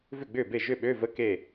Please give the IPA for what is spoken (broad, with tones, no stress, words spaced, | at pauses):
vʏ˥˩ɡ͡bʏː˥˩be˥˩ ʒʏ˥˩ɓø˧˥˧və˧˥˧ ke˥˩